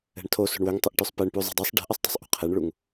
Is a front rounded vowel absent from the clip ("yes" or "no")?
no